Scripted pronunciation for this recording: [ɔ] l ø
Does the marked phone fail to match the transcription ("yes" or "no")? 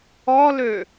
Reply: no